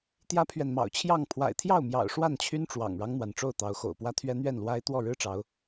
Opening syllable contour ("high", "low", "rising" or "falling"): high